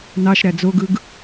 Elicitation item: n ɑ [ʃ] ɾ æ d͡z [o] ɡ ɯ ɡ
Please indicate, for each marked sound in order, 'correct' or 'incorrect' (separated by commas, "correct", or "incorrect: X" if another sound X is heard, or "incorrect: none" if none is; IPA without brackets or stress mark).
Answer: correct, correct